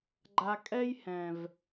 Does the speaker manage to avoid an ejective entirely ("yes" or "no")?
no